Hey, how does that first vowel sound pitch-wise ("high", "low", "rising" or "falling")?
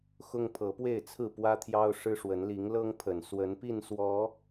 high